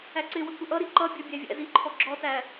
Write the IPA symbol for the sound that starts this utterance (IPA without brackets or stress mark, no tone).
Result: æ